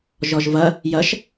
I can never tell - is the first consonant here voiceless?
no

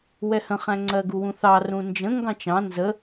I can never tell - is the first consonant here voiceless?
no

